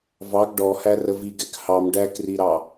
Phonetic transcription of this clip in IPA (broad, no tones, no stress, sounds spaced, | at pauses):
v ɑ ɡ ɖ ɔ h æ r ə v i ɡ ɛ k h ɑ m ɖ æ k r i ɾ ɑ